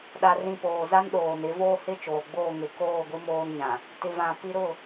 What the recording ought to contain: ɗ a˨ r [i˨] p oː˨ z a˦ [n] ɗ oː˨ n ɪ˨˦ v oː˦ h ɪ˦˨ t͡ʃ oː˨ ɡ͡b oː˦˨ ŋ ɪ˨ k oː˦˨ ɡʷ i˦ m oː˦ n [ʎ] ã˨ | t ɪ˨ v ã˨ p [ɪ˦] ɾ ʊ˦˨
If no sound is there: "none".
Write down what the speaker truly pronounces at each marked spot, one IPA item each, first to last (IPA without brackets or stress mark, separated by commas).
ĩ˨, n, ɲ, i˦